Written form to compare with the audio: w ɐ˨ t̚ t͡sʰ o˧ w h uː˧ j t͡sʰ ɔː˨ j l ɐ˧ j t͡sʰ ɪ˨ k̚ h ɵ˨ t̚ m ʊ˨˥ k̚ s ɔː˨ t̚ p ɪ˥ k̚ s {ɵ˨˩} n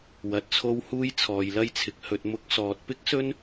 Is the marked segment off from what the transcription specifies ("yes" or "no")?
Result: yes